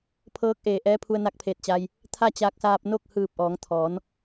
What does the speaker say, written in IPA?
pʰ ɤː˧˥ k̚ ʔ eː˩ ʔ ɛː˧˥ pʰ u˧ ə̯ n a˧˥ k̚ pʰ eː˧˩ t̚ t͡ɕ a˧ j | t̪ʰ a˥˨ t͡ɕ aː˧ k̚ s aː˧ p̚ n o˥˨ k̚ h ɯː˧˩ p̚ ʔ ɔː˩˧ ŋ t̪ʰ ɔː˩˧ n

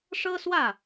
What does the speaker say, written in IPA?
ʂ ɤ˥ s w ä˥˩

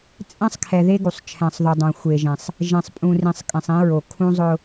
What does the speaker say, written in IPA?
t͡sʼ ɛ̃˦ sˤ kʰ ɛ˨ ð e˦ ɡ u˨ sˤ t͡ʃʰ ɛ̃˨ sˤ ð u˨ dˤ õ˨ xʷ e˨ ʒ ẽ˨ sˤ | ʒ ẽ˨ sˤ pʼ ũ˨ r ĩ˨ sˤ kʼ ẽ˨ sˤ ĩ˨˦ ɹ o˨ kʰ ũ˦ zˤ ʊ˦

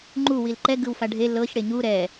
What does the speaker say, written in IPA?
ŋ͡ǃ u w i l ǃ ɛ ɡ ɯ w f a ɖʱ e l ɤ ç ɽ e ɲ u ɾ ɛ

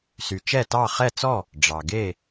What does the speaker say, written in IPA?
s y˩ t͡ʃ ɛ˥˩ t ɑ˥˩ χ ɛ˥˩ t͡s ɔ˥˩ | ɖ͡ʐ ɑ˩ ɡ e˥˩

